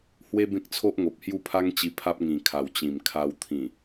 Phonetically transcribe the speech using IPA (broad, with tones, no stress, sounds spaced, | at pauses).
h w e˦ b ẽ˦ k̚ t͡sʰ o˦ ʔ ŋ o˨ p̚ h j u˥˧ pʰ a˦ ŋ t͡ɕ i˧ pʰ a˦ p̚ ŋ ĩ˨˩ kʰ a˨˩ w t͡ɕ ĩ˨˩ m kʰ a˧ w t̪ʰ ĩ˨˩